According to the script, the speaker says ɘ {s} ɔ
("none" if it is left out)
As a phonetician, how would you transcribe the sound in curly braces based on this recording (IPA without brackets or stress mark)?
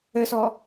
s